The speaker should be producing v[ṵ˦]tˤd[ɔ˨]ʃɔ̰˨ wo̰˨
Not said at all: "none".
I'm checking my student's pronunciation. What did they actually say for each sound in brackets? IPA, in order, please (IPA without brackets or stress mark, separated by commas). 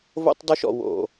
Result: o̰˦, ɔ˦